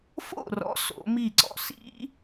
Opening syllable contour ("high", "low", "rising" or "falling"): falling